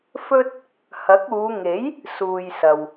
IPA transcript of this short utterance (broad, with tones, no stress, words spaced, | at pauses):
fɵ˥t̚ | hɐ˨˥k̚uː˨˧ ŋe˨˥j | suː˨jsɐ˨w